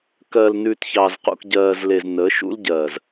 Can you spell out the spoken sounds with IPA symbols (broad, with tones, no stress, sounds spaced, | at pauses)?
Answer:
k ɜ˨ l n ʉ˨ t ç ɑ˨ z q ṵ˨ k ɟ ɜː˨ z l e˨ z n əː˨˦ ʃ ṵ˦ l ɟ ɜː˨ z